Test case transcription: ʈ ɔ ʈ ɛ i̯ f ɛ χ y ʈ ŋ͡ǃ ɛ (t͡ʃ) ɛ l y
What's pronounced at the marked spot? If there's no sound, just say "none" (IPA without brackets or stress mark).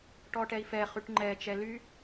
t͡ʃ